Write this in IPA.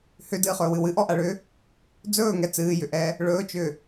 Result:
hʏdɨːχɵːwɨ wɨʔɔʔaɭʏː | d͡zɵːŋɛ t͡sɨːjʏʔɛː | ɭɵːt͡ʃʏː

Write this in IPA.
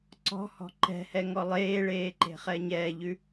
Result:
ǀɔ̤hɔ̤ ǃɛ̤hɛŋɔ lˠeːɭeːǃe̤χɛ ɲɛːʎʉ

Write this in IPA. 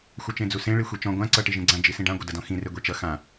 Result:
xʷʌt͡ʃẽd͡zusẽ ɭixʷet͡ʃɔ̃ ɡʷã ǀʌ ʈiʒĩɡ͡ǀã d͡ʒisĩɖã ɡʷʌdʌdɔ̃xĩ reɡʷet͡ʃʌ xã

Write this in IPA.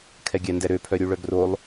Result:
kʰɛɡʲændɛɾø pʰœɾʲuɭœɡrolˠ

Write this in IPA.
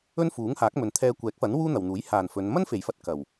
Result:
ɵ˥nfuː˨˥ŋhaː˨˥k̚mɵ˨n t̪ʰɛː˧ kʷɛː˨˥k̚fɐ˨˥n wuː˥n̪ɐ˨wn̪uː˨˥j haː˨˩n fɵ˨˧n mɐ˥nfe˨˩jfɐ˧t̚ kɐ˨˩w

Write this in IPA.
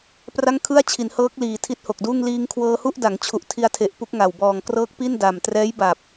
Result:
pra˥˩ŋkʰɯ˥˩a̯t͡ɕʰi˩˦n hɤː˦˥k̚liː˨˩ tʰi˦˥t̚ho˨˩k̚duː˥˩ŋ liː˧ŋkʰwɤː˧hu˥˩ʔda˩˦ŋ t͡ɕʰu˨˩ʔtʰi˧a̯tʰe˨˩ʔ pu˦˥k̚ŋa˨˩w bɔː˨˩ŋkrɤː˦˥k̚pi˥˩n da˨˩m trɛː˦˥jba˨˩p̚

